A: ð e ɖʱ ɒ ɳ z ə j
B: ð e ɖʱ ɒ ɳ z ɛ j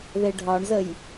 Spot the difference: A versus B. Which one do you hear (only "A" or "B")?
A